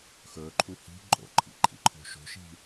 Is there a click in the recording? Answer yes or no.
yes